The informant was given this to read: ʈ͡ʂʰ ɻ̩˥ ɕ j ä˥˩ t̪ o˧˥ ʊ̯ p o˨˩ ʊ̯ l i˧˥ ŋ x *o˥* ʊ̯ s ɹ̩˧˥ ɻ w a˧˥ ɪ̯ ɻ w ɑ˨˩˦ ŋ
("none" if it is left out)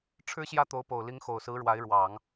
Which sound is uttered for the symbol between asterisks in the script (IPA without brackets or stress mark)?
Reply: o˨˩